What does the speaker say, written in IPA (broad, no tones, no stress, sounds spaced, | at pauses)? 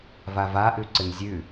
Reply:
v a v a ʔ ʉ ǀ ɨ n zʲ ʉ